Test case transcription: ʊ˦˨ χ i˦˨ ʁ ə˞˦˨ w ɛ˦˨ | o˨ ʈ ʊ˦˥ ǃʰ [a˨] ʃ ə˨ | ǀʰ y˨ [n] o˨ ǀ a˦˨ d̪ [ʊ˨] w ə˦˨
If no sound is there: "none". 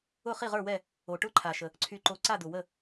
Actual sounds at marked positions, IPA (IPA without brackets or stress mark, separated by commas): a˨, ǃ, ʊ˨